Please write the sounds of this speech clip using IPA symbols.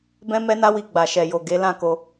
b ɛ̃˦ m ɛ˦ n a˦ w i˧ ɡ͡b a˨ ʃ ɛ˨ j o˨ ɡ e˨˦ l ã˦˨ k o˧

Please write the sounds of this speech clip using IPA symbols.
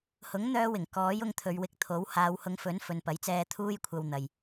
h ʊ˨˥ ŋ n̪ œː˧ w ɪ˨˩ ŋ k ɔː˨˥ j ʊ˧ ŋ t̪ʰ ɵ˨˧ ɥ w ɪ˧ k̚ t̪ʰ o˨˥ w h aː˨˧ w h ʊ˨˧ ŋ f ɵ˨˥ n f ɵ˨ n p ɐ˨˥ j t͡s ɛː˧ t̪ʰ uː˥ j kʷʰ ɐ˧ w n̪ ɐ˨ j

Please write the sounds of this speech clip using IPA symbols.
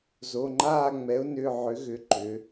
z o˩˧˩ ŋ͡ǃ aː˦˨ ŋ͡m ɛ˩˥ ʊ̯ n ʏ˩˧˩ ʕ ʏ˩˥ ɣ ʏ˩˧˩ ǃ ʏ˩˧

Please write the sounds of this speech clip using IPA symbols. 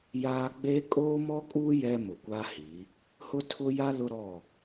j aː˦ ɡ͡b eː˦ kʼ oː˦ m ɔ˦ kʼ uː˦ j ɛ˦ m ʊ˨ kʷ a˦ h i˨˦ | h ʊ˦ tʰ ʊ˦ j a˦ l ʊ˦ ɾ ɔ˦˨

